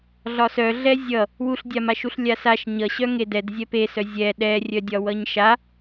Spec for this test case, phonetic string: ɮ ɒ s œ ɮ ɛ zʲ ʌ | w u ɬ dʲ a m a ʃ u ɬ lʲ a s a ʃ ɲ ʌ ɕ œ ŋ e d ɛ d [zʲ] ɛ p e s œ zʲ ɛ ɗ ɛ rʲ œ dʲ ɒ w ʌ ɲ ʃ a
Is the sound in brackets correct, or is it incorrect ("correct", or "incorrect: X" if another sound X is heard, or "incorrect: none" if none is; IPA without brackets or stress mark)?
correct